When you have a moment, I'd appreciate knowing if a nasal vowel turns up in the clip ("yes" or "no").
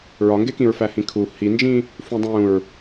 yes